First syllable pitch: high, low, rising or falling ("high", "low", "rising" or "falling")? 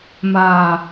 low